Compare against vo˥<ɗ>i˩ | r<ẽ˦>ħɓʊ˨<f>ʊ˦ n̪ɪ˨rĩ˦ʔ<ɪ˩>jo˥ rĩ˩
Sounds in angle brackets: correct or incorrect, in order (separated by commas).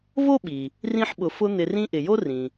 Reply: incorrect, incorrect, correct, correct